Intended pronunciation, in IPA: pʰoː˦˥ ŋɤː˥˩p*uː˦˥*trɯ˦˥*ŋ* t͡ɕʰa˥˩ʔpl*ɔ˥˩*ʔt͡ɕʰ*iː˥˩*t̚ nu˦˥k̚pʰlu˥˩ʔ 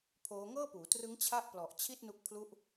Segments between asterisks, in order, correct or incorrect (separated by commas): incorrect, correct, incorrect, incorrect